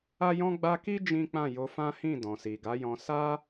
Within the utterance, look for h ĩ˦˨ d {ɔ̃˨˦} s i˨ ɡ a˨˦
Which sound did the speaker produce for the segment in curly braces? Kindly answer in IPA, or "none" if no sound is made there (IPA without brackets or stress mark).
ɔ̃˨